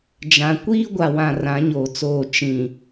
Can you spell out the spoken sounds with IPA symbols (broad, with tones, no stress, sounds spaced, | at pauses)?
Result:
d͡ʒ ã˨ kʷ iː˦ ɡʷ a˨ w ã˨ r ã˨˦ ɲ oː˨ t͡s oː˦˨ t͡ʃ ĩ˨